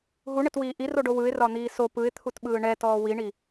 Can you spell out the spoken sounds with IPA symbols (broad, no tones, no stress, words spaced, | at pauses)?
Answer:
ɦuɳɘtwiː ʔiroɖo wɯɪ̯rɒn̪iː so pɯɪ̯t̪ʰutɓɯː ɳɛtɔː wiɳi